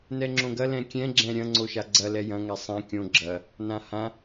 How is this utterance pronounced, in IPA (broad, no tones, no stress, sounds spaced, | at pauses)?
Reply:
n ɛ ŋ͡ǁ õ ɡ ɐ l ɛ̃ kʲ ɛ̃ ɡ͡ǁ ɛ̃ ɾʲ ɐ̃ ŋ͡ǀ o ʃ a ɡ͡ǀ ɐ l ɛ j ɐ̃ ŋ ɛ sˤ ɛ̃ kʲ õ ɡ͡ǁ ɐ | n ã h ã